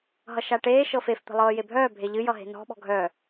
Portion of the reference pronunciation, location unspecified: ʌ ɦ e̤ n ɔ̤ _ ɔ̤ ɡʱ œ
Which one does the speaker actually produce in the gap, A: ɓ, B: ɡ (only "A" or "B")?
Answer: A